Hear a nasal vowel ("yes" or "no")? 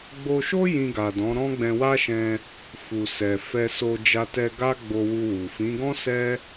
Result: yes